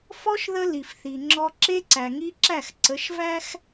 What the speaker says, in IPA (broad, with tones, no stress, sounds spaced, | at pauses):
f ɔ˦ ʃ ð ə˦ l i˨ f θ i˨ ŋ͡ǁ ɔ˦ ǁ e˦ ǀ æ˨ ŋ i˦ ǁ æ˦˨ x ǀ ə˨˦ ʃ v æ˦ x